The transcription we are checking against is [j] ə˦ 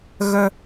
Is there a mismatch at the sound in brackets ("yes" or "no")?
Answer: yes